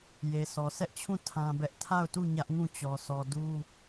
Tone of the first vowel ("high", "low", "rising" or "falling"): low